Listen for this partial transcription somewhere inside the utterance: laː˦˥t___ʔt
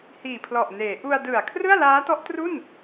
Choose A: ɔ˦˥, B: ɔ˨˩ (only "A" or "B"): A